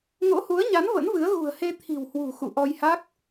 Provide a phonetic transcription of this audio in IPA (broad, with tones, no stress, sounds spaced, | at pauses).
ŋ o̰˧˥ h u˨˦ ə̯ ɲ a˨˦ n v ə̰˧˥ n v ɨ˨˦ ə̯ ɣ ṳ˨˩ ə̯ h e˧ t̪ʰ i̤˨˩ w h w ṳ˨˩ x ṵ˧˨ ʔ ɔ˧ j h a˦˥ k̚